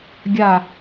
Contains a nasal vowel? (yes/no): no